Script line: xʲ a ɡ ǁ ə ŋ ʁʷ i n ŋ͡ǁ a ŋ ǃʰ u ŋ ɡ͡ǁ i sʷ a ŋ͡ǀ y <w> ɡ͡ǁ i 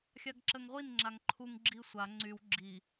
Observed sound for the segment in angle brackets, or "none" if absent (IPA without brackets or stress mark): w